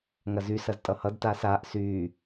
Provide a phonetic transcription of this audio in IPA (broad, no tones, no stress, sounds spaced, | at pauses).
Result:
ŋ ɐ z y s ɐ z tʼ ʌ h ʌ d t aː s aː ʔ s yː